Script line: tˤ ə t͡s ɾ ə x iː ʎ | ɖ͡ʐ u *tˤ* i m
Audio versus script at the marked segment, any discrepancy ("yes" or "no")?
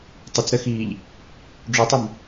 no